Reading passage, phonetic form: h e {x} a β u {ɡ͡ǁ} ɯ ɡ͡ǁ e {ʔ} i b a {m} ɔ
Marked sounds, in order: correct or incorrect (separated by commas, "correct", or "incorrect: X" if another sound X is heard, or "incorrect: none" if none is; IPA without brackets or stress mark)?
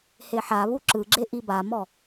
incorrect: ħ, incorrect: ǁ, correct, correct